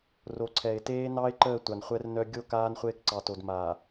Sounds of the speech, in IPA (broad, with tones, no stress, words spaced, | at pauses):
ro˨ǀʰɛ˨ɪ̯teː˦ nɑ˦ɪ̯ǃəː˦˨ tʷa˨nχʷɛ˦rnœ˦ ɡʲo˦˨ kaː˦nχʷeː˦kǀɑ˨to˨d maː˨